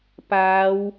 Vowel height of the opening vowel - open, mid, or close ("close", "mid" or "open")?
open